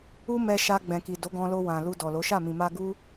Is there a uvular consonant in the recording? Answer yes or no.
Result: no